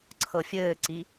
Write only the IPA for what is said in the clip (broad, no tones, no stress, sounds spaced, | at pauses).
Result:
ǀʰ ɤ fʲ ɘː ǀ i